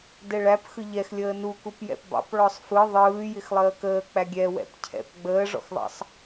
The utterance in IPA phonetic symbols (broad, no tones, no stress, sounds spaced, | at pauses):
d ɛ ɭ æ p x ɯ ʎ ɛ x lʲ əː n u k u p j ɛ̰ p b ɑ̰ p ɭ ɔ sˤ f ɯ ðˤ ɯː j ɪ x lˠ əː k əː k͡p æ ɡʲ ɛ w ɛ̰ p cʰ ɛ̰ p ɡ͡b əː ʐ ɔ̰ x ðˤ ɑ̰ sˤ